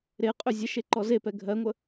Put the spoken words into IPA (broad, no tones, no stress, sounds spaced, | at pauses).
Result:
ɾ e qʼ ʏ zʲ ə ʃ e ǃ ɔ z e p ɛ ɡʱ ɜ ŋʷ ə